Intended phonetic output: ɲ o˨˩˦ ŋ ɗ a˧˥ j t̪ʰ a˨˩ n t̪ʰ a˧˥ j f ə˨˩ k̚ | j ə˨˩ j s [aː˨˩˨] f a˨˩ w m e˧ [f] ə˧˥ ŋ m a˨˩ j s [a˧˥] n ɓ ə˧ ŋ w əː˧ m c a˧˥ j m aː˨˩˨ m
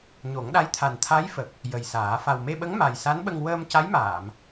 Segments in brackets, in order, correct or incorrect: incorrect: aː˨˩˦, incorrect: ɓ, correct

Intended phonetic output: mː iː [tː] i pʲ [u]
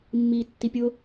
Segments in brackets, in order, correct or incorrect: correct, incorrect: ʊ

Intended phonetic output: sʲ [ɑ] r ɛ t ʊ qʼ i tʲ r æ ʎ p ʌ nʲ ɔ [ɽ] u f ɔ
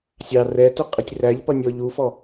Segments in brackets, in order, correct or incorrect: correct, incorrect: ʎ

